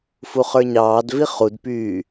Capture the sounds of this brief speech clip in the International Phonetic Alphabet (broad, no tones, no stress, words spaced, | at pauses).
fuχə˞ɲɑːdvi χudpyː